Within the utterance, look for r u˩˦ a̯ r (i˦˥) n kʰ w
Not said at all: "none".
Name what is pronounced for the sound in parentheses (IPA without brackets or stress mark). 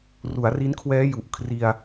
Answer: i˦˥